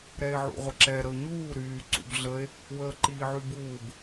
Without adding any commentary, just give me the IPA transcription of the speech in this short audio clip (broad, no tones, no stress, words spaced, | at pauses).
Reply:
ɾɛe̯ʕṵʁʷəǁɛ ɾəo̯ɲuː ɾyː ǀṵbɮəe̯ | wəːǃiːʕybuːb